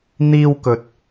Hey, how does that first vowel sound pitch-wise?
high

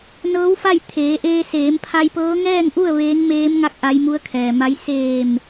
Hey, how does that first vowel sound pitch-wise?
rising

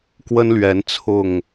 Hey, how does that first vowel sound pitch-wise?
high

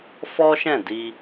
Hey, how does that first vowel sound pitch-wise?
high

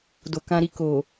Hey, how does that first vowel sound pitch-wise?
low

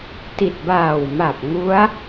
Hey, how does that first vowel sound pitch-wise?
low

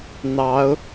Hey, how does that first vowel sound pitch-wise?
rising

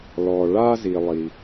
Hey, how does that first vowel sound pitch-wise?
low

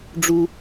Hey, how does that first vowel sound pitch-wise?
high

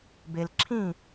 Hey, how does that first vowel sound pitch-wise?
low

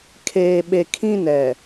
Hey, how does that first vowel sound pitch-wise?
low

